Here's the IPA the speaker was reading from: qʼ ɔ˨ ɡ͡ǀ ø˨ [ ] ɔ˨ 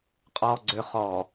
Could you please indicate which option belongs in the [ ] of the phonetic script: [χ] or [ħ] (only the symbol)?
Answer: χ